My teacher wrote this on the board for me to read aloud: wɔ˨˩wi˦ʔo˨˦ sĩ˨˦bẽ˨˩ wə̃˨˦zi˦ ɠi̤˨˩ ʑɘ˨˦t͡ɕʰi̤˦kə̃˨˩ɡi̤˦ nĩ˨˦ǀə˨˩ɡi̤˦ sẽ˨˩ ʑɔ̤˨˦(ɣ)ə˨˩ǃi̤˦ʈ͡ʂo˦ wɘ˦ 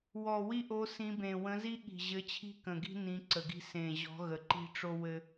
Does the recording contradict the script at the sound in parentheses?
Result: no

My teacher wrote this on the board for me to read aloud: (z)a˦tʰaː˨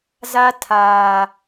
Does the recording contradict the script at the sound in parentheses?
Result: no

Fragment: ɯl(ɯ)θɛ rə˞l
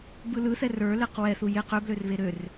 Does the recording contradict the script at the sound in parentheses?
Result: no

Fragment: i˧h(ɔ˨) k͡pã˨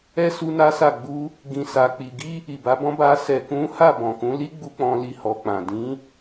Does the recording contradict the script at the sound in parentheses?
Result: no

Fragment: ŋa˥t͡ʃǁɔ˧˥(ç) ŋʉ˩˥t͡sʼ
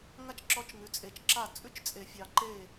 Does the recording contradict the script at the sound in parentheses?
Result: yes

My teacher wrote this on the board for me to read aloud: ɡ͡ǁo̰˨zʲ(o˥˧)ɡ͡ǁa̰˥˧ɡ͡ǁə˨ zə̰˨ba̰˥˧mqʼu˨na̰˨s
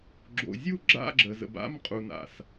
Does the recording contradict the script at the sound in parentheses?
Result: yes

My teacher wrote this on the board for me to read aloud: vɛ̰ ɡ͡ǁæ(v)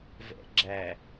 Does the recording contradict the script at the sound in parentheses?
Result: yes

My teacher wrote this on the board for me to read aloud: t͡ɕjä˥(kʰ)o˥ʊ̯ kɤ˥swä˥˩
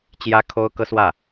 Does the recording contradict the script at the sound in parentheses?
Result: no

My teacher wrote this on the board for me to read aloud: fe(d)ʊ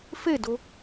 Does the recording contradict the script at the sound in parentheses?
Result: no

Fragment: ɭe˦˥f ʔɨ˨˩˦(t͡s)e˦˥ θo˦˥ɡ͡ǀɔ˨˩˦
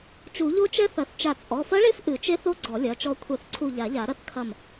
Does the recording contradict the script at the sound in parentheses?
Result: yes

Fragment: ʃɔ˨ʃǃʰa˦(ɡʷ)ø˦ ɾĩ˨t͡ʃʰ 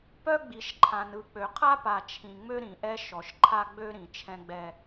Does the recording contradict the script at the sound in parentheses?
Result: yes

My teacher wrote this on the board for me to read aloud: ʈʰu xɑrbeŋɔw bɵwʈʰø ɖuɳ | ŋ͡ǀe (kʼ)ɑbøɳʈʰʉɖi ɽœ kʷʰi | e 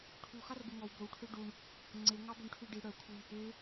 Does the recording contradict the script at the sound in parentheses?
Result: yes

